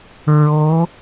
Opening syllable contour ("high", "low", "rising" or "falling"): rising